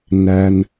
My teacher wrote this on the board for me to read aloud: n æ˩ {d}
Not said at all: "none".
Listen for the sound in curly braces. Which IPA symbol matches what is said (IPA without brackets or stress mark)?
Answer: n